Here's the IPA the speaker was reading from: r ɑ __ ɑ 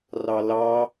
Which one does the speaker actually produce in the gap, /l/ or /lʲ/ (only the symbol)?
l